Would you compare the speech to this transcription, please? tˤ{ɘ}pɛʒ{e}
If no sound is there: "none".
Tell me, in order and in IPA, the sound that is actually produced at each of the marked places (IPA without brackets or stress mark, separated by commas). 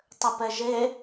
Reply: ɘ, e